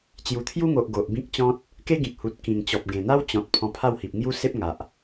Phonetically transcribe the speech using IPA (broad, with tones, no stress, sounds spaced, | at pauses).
t͡ɕ j u˨˩ t̪ʰ j u˦ ŋ o˨ ʔ ɡ o˨ ʔ b ĩ˦ k̚ t͡ɕ ɔ̃˦ t̚ | k e˦ ɡ ĩ˨ k̚ h u˨ t̚ k ĩ˨˩ ŋ t͡ɕ ɔ˨ p̚ ɡ ẽ˨˩ n̪ a˦ w t͡ɕ ɔ̃˨ t̚ pʰ ɔ̃˧ pʰ a˥˧ w h i˨ p̚ ŋ j u˦ s e˦ p̚ ŋ a˨ ʔ